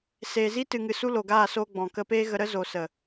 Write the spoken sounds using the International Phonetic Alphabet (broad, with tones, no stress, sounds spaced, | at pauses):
s eː˨ z i˦ t ɨ˨ ŋ ɨ˨ s u˧ l o˨ ɡ aː˦˨ s oː˧ ɡ͡b ɔ̃˨ k ə˧ p eː˦ ɣ ə˧ ɾ ə˦ z o˨ s ə˨